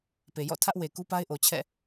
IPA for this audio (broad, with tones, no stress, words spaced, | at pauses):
pe˨jɔ̰˦˨tʰä˦ʔwe˨ ku˦pa˦ɪ̯ʔo˨ t͡ɕʰɛ̰˦˨